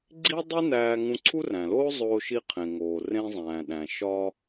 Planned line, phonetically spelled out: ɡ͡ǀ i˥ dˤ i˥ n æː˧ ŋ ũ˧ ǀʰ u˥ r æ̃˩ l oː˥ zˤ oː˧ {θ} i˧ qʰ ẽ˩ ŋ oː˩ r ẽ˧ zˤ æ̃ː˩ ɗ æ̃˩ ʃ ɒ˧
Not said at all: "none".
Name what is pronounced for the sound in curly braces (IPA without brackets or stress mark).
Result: ʃ